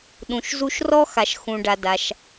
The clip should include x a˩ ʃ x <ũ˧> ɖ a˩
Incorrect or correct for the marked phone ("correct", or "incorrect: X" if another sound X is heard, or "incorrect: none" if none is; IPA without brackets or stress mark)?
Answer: incorrect: ũ˩